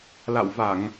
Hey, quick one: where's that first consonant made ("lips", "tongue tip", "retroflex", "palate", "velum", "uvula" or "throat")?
tongue tip